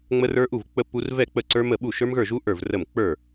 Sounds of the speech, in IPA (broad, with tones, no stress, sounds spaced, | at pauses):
ŋ͡m ə˦˥ r ə˞˦˥ ʔ u˥˩ v k͡p ə˦˥ p u˦˥ r v ɛ˥˩ k͡p ə˥˩ ǀ ə˞˦˥ m ə˥˩ ɓ u˥˩ ʃ ə˞˦˥ m ɣ ə˞˥˩ ʒ u˦˥ ʔ ə˞˥˩ v r ə˥˩ m k͡p ə˞˥˩